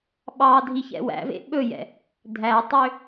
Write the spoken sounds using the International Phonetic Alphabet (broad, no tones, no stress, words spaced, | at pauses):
ɓɑ dʱiçɛ̰wæ̰vḛ ɓɵjɛ̰ | dʱætˤø